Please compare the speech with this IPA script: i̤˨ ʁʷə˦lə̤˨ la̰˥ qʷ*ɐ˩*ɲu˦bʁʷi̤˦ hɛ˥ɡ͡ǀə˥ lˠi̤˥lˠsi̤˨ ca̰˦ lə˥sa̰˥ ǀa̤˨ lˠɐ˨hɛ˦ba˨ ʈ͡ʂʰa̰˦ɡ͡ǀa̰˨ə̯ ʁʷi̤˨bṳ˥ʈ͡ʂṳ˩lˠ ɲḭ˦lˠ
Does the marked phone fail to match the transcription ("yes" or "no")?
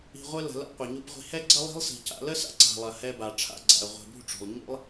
no